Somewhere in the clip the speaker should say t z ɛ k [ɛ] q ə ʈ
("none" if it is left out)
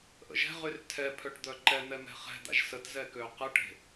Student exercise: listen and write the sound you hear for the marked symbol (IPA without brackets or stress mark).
ø